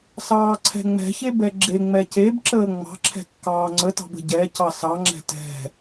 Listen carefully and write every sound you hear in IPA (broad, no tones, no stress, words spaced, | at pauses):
sɑːǀʰɛ̤ŋ͡mɛ̤çe bɛɡ͡ǁeŋ͡mɛ cebǁəː ŋ͡mɑ̤ǁʰɛ̤ kːɑːŋ͡ǀətɑ̤b ə̤ɟɛcɑ sɑŋ͡ǁɛ̤ tɛ̤